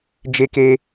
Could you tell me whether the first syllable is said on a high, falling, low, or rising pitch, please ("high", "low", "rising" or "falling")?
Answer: high